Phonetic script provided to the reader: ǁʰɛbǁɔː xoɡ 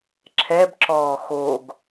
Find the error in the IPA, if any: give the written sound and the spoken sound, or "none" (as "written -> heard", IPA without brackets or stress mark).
none